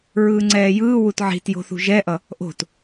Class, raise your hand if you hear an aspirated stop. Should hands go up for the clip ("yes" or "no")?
no